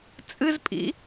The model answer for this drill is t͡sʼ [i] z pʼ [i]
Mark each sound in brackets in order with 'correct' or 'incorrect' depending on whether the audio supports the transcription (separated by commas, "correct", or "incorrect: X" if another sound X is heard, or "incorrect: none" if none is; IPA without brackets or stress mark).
incorrect: ɨ, incorrect: ḭ